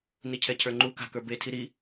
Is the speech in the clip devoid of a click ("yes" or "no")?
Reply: no